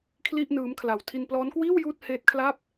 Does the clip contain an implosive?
no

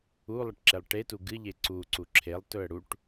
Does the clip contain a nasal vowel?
no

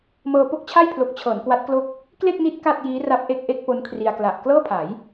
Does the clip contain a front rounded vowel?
no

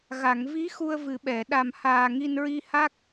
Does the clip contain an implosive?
yes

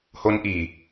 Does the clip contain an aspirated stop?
no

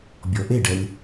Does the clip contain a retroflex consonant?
yes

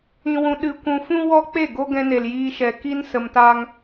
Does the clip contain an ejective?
no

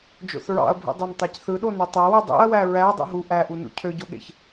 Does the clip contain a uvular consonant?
no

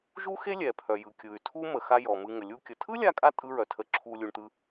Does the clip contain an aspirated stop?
yes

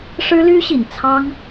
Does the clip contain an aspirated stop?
yes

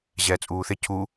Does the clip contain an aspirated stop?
yes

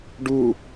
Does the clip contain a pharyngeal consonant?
no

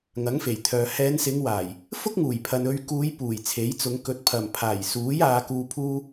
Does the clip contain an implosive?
no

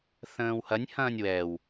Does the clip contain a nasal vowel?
yes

